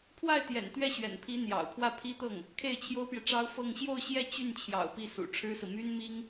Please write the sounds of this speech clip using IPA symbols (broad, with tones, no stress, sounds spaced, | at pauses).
pʰ w a˥˩ ɪ̯ t̪ j ɛ̰˨˩ n t̪ ɥ ɛ˥˩ ɕ ɥ ɛ̰˨˩ n pʰ i˧˥ n̪ j ɑ̰˨˩ ʊ̯ pʰ w ä˥˩ pʰ i˥ t̪ ɤ˥˩ ŋ | kʰ e˥˩ ɪ̯ t͡ɕʰ j o˥ ʊ̯ p j ɛ˨ ʈ͡ʂ ɑ˥ ʊ̯ f ɤ˥˧ ŋ ɕ j o˥˧ ʊ̯ ɕ j ɛ˥˧ t͡ɕ y˥˩ n t͡ɕʰ j ɑ̰˨˩ ʊ̯ p i˥˩ s ṵ˨˩ ʈ͡ʂʰ ɻ̩˥ s ɹ̩˨ m y˥ n m i˥ ŋ